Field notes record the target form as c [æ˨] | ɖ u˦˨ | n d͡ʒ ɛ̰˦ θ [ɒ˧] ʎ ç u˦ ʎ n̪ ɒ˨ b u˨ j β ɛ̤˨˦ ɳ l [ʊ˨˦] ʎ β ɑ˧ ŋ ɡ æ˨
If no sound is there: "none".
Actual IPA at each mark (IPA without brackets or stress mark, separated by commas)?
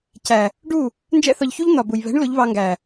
æ˨, ɒ˧, ʊ˨˦